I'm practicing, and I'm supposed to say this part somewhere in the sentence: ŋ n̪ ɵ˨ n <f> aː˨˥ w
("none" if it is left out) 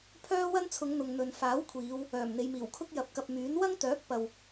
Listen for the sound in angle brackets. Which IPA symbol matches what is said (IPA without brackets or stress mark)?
f